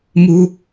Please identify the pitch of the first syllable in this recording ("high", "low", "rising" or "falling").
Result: low